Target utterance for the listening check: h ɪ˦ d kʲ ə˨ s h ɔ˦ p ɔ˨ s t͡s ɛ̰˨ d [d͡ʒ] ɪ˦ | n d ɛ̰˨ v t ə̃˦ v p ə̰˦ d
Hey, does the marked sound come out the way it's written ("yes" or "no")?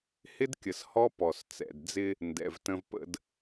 no